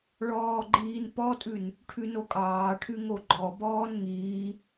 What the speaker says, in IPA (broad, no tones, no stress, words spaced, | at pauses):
ɭɔːɡ͡ǃiːnpɔtʼʉn | ʈʰʉnokʼɑːʈʰʉ ŋoɡ͡ǃɔ bɔːnŋiː